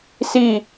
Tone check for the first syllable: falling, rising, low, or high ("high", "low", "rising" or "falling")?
falling